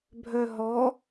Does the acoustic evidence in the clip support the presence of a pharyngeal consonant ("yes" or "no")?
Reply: no